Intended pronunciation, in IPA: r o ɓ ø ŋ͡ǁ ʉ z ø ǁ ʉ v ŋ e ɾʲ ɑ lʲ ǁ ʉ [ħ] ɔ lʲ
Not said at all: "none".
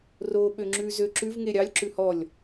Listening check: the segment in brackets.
h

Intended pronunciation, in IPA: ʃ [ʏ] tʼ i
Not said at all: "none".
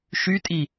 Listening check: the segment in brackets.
y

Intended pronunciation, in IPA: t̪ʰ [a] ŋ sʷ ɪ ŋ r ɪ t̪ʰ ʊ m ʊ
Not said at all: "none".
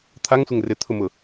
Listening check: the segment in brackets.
a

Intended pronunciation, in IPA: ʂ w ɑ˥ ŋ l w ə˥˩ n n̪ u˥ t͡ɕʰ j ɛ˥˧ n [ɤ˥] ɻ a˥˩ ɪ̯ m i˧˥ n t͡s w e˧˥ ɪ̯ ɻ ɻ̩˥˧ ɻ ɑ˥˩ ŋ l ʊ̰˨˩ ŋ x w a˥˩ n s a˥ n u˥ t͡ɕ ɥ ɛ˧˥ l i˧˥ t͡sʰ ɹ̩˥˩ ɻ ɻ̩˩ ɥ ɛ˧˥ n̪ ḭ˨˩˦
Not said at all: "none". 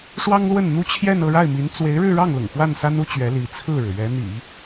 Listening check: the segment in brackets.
ɤ˥˧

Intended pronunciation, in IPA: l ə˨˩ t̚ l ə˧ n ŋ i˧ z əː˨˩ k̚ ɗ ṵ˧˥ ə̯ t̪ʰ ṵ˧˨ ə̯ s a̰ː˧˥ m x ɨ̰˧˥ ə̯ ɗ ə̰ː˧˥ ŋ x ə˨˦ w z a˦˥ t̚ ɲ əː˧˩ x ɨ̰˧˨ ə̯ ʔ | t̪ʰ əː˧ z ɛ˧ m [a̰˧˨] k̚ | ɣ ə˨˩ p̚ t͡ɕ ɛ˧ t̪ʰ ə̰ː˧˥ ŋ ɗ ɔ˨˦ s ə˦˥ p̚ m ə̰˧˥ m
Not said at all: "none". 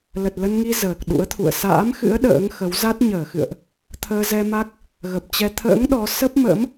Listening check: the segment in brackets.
a˦˥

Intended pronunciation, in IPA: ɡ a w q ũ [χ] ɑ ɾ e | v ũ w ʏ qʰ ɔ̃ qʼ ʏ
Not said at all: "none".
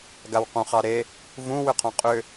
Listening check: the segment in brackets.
χ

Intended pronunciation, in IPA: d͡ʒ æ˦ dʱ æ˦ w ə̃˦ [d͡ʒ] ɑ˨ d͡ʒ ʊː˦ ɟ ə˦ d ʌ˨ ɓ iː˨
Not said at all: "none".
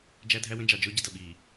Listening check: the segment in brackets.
d͡ʒ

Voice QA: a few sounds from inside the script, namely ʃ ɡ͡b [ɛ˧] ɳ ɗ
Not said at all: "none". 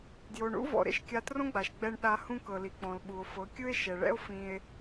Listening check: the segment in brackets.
ɛ˧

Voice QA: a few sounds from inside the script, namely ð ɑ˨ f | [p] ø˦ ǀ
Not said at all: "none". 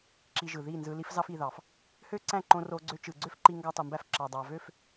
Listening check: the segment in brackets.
h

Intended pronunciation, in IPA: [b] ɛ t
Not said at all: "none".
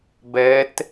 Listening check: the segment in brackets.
b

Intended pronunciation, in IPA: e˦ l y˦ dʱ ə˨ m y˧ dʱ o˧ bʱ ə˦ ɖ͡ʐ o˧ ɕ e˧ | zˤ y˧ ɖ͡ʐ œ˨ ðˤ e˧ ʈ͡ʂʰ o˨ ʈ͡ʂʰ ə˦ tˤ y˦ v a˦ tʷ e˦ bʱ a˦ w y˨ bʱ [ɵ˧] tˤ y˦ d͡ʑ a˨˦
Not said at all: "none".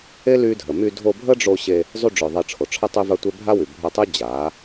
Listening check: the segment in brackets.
œ˧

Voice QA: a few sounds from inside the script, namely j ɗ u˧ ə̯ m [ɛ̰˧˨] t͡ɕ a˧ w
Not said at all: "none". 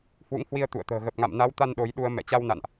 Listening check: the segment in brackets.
ɛ̰˧˨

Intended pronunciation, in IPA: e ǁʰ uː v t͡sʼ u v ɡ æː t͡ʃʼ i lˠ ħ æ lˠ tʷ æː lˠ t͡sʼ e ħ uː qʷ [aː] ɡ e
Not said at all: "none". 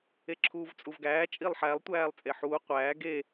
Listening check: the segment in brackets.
æː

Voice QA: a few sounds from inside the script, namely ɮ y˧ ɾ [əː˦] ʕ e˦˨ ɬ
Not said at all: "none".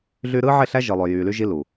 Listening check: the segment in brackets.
ɯː˦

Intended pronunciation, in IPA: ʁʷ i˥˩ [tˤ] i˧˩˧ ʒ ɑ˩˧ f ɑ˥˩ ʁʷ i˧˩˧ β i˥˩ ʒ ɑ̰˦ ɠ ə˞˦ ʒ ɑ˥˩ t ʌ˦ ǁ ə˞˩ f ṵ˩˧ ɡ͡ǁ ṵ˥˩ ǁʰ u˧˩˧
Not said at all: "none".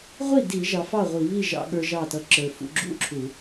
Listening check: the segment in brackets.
d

